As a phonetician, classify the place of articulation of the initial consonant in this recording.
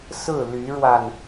alveolar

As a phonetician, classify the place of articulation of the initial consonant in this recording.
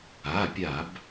labial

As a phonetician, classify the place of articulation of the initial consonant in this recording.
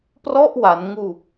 labial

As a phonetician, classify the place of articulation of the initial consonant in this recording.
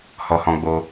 glottal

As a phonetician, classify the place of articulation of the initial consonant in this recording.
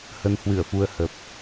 glottal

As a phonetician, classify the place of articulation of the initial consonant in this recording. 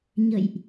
palatal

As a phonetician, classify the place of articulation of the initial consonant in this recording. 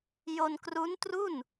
palatal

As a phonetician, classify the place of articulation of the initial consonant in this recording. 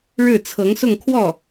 retroflex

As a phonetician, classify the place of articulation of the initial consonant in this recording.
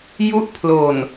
palatal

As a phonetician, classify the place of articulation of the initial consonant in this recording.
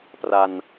labial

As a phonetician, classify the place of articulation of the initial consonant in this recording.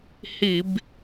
glottal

